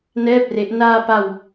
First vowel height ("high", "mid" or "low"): mid